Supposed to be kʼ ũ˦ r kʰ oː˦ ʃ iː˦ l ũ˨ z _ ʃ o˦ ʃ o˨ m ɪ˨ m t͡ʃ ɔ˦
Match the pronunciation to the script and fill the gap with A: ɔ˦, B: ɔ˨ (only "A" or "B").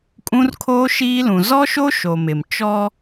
A